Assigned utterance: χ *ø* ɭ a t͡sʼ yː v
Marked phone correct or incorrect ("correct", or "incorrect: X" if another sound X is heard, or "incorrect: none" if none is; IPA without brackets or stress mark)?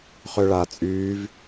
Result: correct